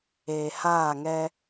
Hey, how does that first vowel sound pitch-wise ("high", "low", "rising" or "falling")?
low